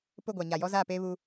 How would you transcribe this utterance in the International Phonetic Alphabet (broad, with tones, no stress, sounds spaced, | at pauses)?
p ʊ˦˨ ɡʷ a˨ ɲ a˨ j ɔ˦ z aː˦˨ p eː˦ β uː˦